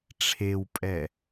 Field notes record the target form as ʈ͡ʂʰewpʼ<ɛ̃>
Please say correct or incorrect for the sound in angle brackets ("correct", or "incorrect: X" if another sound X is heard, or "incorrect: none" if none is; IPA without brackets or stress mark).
incorrect: ɛ